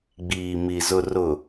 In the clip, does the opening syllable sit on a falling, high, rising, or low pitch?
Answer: low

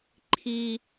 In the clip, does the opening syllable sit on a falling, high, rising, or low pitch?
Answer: low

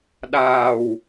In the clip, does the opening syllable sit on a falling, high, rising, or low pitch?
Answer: low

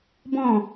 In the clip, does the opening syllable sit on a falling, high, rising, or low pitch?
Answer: falling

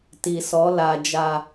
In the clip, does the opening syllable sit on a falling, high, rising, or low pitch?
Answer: low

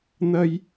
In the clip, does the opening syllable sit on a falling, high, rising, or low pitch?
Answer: high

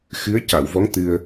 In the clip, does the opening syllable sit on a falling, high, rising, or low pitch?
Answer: rising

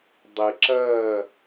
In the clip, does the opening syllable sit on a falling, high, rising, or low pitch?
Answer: low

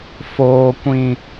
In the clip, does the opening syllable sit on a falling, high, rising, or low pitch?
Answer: low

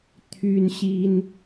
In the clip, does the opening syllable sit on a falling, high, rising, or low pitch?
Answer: high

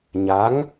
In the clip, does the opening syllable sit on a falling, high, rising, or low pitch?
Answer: rising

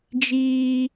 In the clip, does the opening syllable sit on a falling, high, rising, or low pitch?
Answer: high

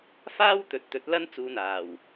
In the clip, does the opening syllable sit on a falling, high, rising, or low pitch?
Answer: high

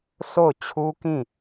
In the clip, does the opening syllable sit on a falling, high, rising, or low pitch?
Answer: falling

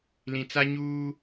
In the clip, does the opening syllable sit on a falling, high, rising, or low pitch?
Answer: low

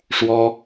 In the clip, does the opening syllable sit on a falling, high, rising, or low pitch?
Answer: high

